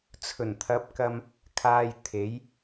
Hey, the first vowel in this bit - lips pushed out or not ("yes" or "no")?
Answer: yes